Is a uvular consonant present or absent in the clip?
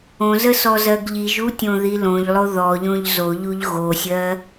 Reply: absent